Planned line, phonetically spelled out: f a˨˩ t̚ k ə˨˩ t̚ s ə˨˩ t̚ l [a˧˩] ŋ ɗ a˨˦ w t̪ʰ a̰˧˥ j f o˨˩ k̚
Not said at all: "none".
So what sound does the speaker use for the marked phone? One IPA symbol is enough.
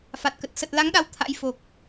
a˨˦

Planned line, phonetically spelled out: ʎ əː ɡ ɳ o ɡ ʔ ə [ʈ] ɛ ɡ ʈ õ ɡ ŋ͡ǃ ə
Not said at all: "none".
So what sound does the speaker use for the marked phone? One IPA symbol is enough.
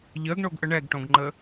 ɳ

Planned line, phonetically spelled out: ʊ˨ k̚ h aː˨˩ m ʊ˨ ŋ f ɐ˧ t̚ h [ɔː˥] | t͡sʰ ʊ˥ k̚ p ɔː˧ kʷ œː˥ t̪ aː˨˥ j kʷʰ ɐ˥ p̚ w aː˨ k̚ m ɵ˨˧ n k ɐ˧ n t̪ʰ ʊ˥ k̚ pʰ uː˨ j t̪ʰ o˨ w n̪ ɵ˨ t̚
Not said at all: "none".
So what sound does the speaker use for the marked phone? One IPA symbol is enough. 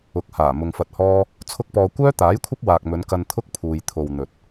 ɔː˥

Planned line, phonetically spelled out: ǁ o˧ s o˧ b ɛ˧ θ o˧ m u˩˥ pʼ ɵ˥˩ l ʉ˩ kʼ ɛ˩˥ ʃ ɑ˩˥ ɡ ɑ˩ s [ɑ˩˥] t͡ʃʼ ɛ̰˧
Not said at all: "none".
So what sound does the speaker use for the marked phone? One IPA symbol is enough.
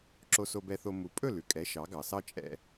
ɑ˥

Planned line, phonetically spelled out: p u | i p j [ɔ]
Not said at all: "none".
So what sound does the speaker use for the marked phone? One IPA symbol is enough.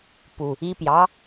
ɑ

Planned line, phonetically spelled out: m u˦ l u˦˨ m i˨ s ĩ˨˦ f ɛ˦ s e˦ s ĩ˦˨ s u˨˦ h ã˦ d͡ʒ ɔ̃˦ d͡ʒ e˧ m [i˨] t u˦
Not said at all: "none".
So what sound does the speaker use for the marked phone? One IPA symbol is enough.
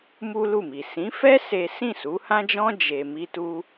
i˦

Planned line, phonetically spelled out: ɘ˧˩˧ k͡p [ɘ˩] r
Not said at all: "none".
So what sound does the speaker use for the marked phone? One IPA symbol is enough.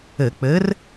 ɘ˨˥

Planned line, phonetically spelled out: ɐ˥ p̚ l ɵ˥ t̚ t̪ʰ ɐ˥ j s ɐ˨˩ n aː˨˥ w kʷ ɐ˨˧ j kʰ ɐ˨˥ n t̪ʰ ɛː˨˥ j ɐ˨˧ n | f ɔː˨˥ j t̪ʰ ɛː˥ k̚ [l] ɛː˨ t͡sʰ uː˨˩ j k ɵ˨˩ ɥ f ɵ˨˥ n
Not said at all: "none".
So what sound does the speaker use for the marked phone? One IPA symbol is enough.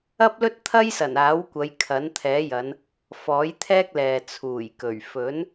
l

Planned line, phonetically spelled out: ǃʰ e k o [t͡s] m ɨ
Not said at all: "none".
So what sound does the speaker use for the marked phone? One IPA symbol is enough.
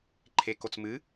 t͡s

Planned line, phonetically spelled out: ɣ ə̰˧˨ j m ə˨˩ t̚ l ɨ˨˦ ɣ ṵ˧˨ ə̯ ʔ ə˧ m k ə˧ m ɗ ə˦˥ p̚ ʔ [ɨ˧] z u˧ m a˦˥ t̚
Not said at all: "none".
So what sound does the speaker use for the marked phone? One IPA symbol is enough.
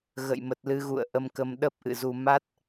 ɨ̰˧˨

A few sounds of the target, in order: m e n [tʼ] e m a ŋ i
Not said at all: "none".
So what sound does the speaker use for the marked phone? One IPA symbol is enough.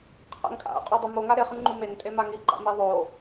tʼ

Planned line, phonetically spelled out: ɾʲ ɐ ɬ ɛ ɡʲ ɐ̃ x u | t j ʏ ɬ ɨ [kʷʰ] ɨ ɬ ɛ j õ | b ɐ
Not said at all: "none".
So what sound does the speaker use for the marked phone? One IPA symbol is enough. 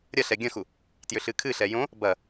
kʰ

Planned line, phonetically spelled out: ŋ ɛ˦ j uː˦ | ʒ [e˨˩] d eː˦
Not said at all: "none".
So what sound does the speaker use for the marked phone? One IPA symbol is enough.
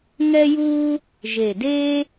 e˨˩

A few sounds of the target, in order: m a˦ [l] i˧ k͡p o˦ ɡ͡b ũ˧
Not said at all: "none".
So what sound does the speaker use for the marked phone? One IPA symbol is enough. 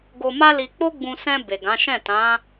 l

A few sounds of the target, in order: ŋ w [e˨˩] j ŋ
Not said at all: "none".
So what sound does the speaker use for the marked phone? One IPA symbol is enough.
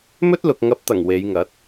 e˨˧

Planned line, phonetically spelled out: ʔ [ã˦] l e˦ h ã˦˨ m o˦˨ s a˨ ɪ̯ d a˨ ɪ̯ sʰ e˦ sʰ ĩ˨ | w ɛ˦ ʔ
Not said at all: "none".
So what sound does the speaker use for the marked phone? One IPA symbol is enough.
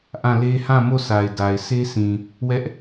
ã˦˨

